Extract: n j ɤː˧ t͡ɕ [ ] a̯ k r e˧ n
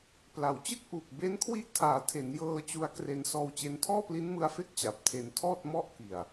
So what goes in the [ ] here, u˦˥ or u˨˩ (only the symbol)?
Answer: u˦˥